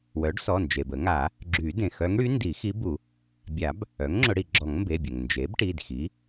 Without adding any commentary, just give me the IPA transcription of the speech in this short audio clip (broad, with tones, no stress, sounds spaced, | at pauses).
w œ˩˥ ɖ s ɔ˩˧˩ n d͡ʒ e˩ b ə˨˩˦ ŋ a˨˩˦ | ɡ͡ǁ y˨˩˦ d ẽ˩ x œ˧˥ ŋ ɽ y˧˥ n d i˨˩˦ x i˧˥ b u˨˩˦ | bʲ a˨˩˦ b | œ˩˥ ŋ ŋ͡ǁ ʊ˨˩˦ ɽ i˩ ɡ͡ǁ ɔ˨˩˦ ŋ m b e˩˧˩ bʲ ə˩ ŋ n d͡ʒ e˩˥ b ʈ i˩˧˩ d x i˩˥